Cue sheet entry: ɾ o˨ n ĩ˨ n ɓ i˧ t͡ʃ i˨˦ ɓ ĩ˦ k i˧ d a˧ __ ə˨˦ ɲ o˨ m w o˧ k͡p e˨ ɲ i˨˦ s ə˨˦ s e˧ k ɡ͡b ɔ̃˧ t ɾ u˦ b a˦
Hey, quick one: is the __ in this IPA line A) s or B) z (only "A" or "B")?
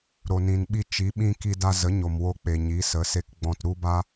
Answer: B